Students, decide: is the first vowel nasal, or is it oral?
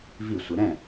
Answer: oral